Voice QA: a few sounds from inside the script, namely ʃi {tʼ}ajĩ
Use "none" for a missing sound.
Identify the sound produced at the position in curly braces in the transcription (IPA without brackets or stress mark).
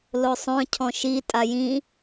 tʼ